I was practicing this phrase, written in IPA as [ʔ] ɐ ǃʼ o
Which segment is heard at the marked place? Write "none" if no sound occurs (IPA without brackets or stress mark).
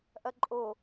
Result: ʔ